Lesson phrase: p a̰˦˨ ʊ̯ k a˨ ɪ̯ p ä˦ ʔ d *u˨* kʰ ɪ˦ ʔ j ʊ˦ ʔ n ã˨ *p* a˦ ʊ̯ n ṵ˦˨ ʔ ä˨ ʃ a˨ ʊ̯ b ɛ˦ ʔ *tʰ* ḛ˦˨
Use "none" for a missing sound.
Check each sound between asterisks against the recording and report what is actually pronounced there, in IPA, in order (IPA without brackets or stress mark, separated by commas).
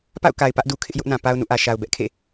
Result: u˨, p, kʰ